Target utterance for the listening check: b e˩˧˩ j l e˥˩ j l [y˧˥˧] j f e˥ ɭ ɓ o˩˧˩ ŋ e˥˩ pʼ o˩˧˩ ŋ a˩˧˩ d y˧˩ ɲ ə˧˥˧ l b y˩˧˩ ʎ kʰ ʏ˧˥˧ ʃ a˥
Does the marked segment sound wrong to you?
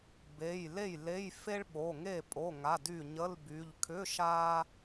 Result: yes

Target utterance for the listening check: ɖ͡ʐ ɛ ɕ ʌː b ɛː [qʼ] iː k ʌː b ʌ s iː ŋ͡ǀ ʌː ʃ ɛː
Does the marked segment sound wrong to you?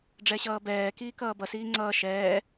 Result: yes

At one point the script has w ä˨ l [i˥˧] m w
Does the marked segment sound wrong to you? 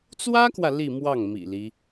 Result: no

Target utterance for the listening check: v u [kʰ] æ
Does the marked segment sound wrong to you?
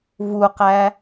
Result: yes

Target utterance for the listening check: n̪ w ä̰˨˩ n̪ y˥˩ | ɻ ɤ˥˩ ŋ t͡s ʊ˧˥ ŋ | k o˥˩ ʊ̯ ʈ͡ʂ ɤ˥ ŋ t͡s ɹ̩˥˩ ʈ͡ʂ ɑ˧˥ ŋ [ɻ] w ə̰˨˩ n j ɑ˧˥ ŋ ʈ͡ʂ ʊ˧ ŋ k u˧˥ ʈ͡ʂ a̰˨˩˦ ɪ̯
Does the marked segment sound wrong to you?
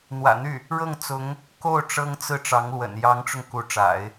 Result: yes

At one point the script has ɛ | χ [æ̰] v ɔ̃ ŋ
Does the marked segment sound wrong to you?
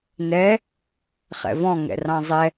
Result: yes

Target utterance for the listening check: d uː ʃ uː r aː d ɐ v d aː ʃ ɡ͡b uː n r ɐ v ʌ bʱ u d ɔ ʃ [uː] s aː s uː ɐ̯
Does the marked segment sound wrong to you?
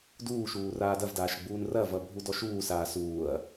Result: no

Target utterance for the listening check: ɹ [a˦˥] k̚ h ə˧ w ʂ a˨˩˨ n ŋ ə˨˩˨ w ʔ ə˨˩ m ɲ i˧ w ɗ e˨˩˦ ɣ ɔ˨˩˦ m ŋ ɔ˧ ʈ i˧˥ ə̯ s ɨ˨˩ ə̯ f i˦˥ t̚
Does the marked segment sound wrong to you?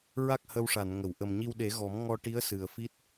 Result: no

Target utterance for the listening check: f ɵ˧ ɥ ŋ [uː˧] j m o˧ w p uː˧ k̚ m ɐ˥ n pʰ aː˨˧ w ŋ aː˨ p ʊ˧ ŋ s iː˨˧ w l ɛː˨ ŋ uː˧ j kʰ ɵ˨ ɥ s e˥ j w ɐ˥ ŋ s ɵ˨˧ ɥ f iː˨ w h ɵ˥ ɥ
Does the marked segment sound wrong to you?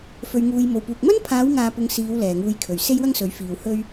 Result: no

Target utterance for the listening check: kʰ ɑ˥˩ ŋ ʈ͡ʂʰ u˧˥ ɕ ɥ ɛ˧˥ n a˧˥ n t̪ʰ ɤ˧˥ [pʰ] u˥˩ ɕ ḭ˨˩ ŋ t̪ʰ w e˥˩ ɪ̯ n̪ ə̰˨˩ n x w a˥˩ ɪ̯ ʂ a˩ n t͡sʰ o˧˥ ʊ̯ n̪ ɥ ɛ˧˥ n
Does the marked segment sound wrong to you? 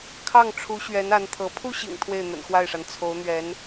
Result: no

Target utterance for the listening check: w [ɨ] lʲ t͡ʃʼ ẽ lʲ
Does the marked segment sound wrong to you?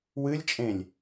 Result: no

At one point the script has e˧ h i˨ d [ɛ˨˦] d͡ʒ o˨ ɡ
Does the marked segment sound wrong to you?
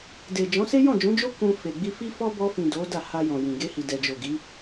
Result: yes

